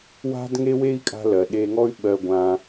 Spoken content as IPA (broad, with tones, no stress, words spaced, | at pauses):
wa̤˦dŋe˦we˦i̯kʼa̤˧ lɜ˨ɗe˧ŋɔ˦y̯ ɓɜ˧ɡʷã˧